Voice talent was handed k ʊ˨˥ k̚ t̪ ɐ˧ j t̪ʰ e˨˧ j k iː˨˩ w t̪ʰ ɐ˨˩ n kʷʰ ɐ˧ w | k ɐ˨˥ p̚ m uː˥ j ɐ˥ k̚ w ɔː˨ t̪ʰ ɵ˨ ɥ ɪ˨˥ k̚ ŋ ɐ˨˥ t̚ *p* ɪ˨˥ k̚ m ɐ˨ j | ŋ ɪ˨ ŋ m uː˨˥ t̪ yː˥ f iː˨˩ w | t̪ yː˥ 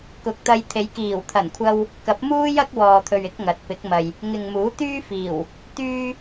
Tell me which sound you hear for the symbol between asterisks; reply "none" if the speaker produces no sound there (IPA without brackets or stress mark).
p